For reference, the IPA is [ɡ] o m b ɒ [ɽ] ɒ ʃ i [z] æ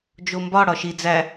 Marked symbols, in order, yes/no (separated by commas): no, yes, no